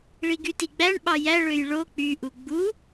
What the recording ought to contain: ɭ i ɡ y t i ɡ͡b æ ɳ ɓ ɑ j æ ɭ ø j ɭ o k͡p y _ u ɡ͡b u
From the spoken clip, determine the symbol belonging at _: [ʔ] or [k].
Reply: ʔ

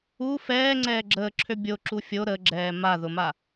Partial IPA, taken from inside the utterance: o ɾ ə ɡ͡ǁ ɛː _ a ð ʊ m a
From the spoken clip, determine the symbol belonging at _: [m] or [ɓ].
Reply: m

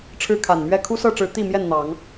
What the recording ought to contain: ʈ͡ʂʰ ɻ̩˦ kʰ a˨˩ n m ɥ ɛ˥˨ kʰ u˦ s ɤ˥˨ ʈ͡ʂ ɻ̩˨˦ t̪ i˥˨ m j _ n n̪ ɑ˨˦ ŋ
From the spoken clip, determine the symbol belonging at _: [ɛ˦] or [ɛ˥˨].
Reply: ɛ˥˨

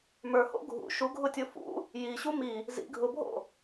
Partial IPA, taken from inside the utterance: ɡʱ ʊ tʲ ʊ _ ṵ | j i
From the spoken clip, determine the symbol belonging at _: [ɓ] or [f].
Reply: f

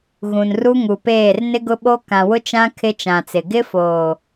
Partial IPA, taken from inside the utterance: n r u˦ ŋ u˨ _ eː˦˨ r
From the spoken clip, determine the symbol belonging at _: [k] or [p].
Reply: p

